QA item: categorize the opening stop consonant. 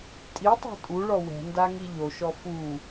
ejective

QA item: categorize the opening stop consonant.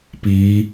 plain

